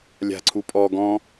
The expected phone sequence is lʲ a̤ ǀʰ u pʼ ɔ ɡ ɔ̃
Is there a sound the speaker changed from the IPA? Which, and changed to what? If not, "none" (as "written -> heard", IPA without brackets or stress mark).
none